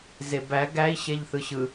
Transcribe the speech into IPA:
z e b æ ɡ æ i̯ ɕ e ʎ θ ɯ ɕ ɯ

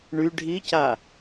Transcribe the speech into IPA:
ɳ y ɖʱ i c a

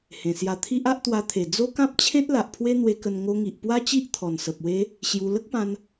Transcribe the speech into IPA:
h ẽ˨˩ s j a˧ t̪ʰ i˦ ʔ a˦ ʔ t̪ w a˧ t̪ʰ e˨˩ d͡z o˦ k ã˦ p̚ t͡ɕʰ ẽ˦ t̚ l a˨ ʔ pʰ w e˦ n̪ w e˧ k ə˧ n ŋ o˧ ŋ i˨ ʔ p w a˦ t͡ɕ i˦ ʔ t̪ʰ ɔ˨˩ n s ə˨ p̚ w e˦ | ɕ j u˧ l ə˦ k̚ p ã˧ n

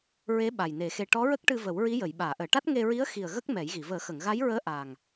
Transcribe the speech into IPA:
ɹ e˧˥ ɓ a˨˩ j n e˨˩˦ x e˧ ʈ ɔ˧˥ ɹ ə˦˥ k̚ ʈ ɨ˧ v ə˨˩˦ w ɹ i˧˥ j ə˨˩˨ j ɓ aː˨˩˨ ʔ əː˨˩˨ ʈ a˦˥ t̚ ŋ e˧ ɹ i˧˥ ə̯ x i˨˩ ə̯ ɣ ə˦˥ k̚ m ɛ˨˩˦ j ɣ i˨˩˨ v əː˨˩˦ x ə˨˩˨ ŋ ɣ a˧˥ j ɹ əː˧˥ ʔ aː˨˩ ŋ

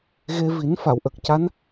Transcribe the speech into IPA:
ɣ e˧ v i˨˩˦ n f a˨˩˨ w ʔ ə˨˩ k̚ c a˧˥ n

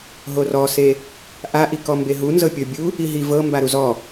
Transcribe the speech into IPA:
ɦ o r ɔ s e | ʔ a ʔ i k ɔ m b e ɦ u n z ɤ pʲ ɤ bʲ u | i ɦ i v ɤ m b a ɾ u z ɔ

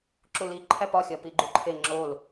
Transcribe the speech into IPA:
ǁ u l i ǃʰ æ p ɒ xʲ ɒ p i ɡ͡ǃ u ǃʰ e ŋ͡ǁ o l

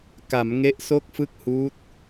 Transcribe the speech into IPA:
k a˩˦ m ŋ e˦˥ ʔ s o˥˩ k̚ f ɯ˥˩ k̚ h uː˦˥ t̚

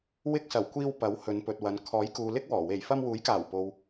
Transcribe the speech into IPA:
w ɪ˧ k̚ s ɐ˨˩ w kʷ iː˧ w p ɐ˨˥ w h ɵ˨˧ n p ɵ˨ t̚ w ɐ˨ n kʰ ɔː˨˥ j k uː˨ l ɪ˥ k̚ w ɔː˨˩ w e˨˩ j f ɐ˧ m w uː˨˥ j k aː˨˩ w p o˨ w

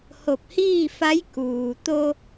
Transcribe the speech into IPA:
h o˧˩ p̚ h iː˥˨ f a˧˥ j k uː˩ t̪ o˧

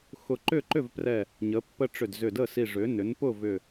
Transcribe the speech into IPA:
x ʊ˧˩ ǃ ʏ˥˨ ǃ ʏ˥˨ v p r ɛ˧˩ | ɲ ə˩˥ pː ə˦ ʈ͡ʂ ʏ˧˩ d z ʏ˧˩ d ə˥˨ s i˧˩ ʐ ʏ˩˥ n ʏ˩˥ n p ʊ˥˨ v ʏ˧˩

